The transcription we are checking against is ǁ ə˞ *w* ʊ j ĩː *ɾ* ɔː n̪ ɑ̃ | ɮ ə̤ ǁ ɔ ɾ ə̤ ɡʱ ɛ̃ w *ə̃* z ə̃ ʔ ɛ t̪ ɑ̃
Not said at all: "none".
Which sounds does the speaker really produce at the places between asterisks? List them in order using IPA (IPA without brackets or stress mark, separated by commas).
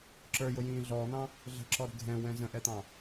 j, ɮ, ɛ̃